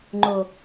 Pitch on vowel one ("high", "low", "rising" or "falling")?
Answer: low